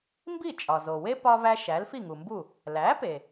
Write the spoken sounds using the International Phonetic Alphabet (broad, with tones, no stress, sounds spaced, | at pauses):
m b i˥˩ t͡ʃʼ ɒ˩ z o˩ w e˥ p ɒ˧ v æ˧ ʃ æ˩˥ l f i˥˩ ŋ u˩ m b u˥˩ | l æ˩˥ p e˩